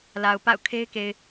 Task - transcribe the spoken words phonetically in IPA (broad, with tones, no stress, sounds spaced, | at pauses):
l a˨ ʊ̯ p a̰˦˨ ʊ̯ kʰ e˦ ɪ̯ k e˨ ɪ̯